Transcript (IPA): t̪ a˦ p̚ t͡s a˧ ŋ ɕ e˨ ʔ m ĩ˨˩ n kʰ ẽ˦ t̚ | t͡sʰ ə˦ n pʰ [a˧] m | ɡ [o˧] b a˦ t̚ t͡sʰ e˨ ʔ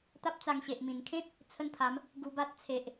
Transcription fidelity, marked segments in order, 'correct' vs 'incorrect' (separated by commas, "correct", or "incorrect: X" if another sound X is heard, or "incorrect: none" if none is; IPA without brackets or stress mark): incorrect: a˨˦, incorrect: u˧